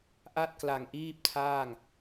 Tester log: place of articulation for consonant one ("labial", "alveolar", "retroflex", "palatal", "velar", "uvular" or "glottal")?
glottal